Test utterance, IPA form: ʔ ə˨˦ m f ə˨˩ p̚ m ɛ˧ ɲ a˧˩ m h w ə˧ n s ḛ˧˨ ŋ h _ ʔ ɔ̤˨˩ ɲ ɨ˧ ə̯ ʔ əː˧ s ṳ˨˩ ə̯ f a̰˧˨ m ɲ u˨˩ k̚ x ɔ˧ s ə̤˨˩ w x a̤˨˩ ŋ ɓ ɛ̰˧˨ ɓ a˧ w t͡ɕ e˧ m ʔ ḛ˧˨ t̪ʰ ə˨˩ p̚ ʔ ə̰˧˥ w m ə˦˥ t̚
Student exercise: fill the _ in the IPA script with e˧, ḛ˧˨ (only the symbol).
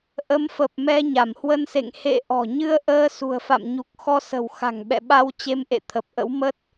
ḛ˧˨